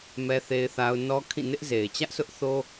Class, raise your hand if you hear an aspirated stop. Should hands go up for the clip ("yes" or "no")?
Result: yes